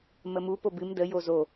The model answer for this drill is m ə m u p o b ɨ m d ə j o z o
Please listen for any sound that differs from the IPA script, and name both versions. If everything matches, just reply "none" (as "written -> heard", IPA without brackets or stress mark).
none